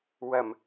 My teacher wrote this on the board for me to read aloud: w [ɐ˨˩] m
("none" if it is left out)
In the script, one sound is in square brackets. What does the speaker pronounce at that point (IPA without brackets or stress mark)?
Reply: ɐ˨˩